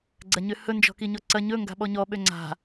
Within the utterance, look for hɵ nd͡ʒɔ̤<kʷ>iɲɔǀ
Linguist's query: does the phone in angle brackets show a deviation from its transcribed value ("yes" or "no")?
yes